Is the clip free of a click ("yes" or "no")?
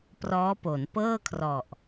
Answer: yes